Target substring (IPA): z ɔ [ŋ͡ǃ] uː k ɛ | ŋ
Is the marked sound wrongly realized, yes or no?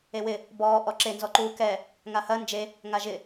yes